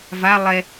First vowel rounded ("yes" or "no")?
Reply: no